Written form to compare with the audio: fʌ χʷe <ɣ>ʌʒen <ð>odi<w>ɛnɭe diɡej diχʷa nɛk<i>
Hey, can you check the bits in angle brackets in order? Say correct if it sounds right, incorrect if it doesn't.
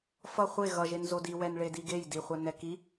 correct, incorrect: z, correct, correct

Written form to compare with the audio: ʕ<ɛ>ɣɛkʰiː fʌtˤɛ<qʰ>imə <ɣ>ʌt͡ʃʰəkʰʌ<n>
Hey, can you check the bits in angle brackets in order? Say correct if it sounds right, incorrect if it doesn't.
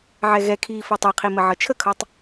correct, correct, incorrect: ʕ, incorrect: tˤ

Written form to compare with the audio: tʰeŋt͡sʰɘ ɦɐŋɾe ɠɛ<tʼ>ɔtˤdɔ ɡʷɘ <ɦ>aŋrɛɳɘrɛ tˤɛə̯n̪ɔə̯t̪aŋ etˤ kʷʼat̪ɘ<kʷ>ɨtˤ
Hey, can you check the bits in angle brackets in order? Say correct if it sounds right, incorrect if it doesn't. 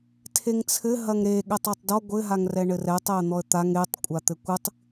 incorrect: tˤ, correct, correct

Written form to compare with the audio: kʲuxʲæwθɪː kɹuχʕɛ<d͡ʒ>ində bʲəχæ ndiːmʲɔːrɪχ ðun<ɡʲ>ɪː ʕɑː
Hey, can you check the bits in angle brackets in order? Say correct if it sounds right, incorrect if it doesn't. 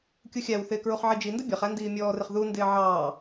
correct, incorrect: d

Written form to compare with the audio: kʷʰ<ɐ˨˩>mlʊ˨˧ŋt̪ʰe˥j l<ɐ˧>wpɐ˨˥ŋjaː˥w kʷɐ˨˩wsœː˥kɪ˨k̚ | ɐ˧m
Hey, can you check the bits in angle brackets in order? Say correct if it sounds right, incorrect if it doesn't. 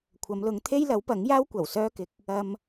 incorrect: ɐ˨˧, incorrect: ɐ˨˥

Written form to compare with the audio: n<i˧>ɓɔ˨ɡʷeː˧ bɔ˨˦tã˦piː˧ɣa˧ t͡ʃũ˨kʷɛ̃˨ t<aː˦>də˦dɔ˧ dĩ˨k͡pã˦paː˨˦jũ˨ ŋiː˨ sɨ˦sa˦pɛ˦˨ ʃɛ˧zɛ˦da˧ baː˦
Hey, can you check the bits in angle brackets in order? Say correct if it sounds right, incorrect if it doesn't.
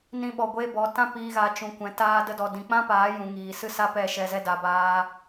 incorrect: ĩ˧, correct

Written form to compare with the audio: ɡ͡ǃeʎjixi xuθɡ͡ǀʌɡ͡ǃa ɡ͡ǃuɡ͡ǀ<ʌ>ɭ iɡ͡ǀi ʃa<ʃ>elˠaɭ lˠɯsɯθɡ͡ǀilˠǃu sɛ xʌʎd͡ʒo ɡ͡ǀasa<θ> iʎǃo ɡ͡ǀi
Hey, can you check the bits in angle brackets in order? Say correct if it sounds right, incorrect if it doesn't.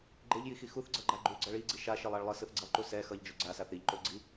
correct, correct, correct

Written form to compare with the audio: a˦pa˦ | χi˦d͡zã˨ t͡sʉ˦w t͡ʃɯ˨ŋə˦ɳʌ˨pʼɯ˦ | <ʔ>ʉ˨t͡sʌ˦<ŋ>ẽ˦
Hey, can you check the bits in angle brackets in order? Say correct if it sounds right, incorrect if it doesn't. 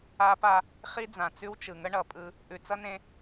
correct, incorrect: n

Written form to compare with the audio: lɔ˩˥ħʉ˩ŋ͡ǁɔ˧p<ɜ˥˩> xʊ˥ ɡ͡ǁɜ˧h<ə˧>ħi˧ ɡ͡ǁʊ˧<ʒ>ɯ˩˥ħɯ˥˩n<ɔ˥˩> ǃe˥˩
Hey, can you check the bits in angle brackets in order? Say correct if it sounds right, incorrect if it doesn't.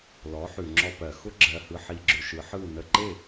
incorrect: ɜ˩, incorrect: ɯ˧, incorrect: ʃ, incorrect: ə˥˩

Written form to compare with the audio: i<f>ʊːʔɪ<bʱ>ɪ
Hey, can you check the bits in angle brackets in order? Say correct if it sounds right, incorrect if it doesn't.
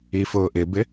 correct, incorrect: b

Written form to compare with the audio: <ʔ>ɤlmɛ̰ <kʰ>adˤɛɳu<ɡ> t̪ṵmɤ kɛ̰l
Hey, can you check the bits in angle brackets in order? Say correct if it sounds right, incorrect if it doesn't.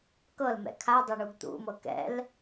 incorrect: k, correct, correct

